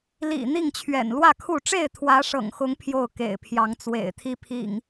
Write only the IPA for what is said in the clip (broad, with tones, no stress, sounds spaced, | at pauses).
l ḭ˨˩ n̪ i˥˨ ŋ t͡ɕʰ ɥ ɛ̰˨˩ n l w ä˥˨ kʰ u˥˨ ʈ͡ʂ e˥˨ ɪ̯ t̪ʰ w ä˨˦ ʂ ɤ̰˨˩ ŋ x ʊ˨˦ ŋ pʰ j o˥˨ ʊ̯ k ḛ˨˩ ɪ̯ pʰ j ɑ˨˦ ŋ t͡s w ḛ˨˩ ɪ̯ t̪ʰ i˦ pʰ ḭ˨˩ ŋ